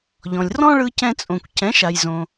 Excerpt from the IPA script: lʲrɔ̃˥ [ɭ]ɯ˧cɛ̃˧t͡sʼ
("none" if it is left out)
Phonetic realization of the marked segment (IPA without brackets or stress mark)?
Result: ɭ